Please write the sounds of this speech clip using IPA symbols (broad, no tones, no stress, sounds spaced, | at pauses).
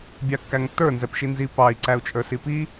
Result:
bʲ ɑ kː æ ŋ tː ə˞ n z ɛ p ʃ i n z i p ɑ i̯ ǀ æ u̯ t͡ʃʼ ə˞ s i p i